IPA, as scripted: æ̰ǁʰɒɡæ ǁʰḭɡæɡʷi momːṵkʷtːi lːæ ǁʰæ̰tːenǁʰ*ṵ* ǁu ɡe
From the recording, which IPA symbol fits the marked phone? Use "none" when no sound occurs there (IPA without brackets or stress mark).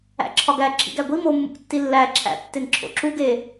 o̰